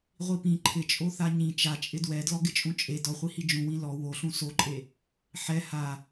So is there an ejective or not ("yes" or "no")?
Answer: yes